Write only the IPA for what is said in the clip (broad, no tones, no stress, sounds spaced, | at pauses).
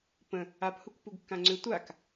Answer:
p ə̃ | a p h u k p u ɡ kː ã ŋ͡ǀ ʏ tʷ a k